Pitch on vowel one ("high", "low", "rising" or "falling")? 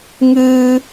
high